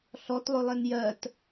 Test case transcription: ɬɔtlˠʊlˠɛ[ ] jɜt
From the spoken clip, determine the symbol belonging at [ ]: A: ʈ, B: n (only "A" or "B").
B